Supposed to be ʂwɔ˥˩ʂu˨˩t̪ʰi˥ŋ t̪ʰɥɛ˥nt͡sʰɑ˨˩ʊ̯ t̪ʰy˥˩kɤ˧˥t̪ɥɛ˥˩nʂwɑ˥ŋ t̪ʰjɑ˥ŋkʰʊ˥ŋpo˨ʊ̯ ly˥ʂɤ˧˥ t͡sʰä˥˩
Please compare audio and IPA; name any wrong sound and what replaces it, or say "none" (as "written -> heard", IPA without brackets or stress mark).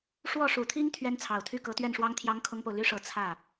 none